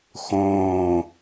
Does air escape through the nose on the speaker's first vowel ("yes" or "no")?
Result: yes